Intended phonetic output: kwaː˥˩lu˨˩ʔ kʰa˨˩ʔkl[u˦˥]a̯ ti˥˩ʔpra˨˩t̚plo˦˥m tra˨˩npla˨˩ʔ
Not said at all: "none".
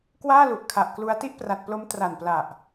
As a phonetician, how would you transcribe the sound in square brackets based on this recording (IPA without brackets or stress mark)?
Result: u˦˥